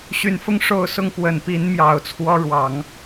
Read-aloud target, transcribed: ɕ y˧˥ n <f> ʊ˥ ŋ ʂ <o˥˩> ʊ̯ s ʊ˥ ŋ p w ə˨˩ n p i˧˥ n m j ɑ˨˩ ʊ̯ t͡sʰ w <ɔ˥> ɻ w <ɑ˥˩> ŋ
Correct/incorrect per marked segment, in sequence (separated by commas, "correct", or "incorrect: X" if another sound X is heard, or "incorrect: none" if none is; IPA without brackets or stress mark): correct, correct, correct, incorrect: ɑ˨˩˦